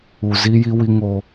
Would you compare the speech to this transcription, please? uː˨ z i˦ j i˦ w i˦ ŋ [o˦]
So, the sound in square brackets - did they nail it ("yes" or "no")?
yes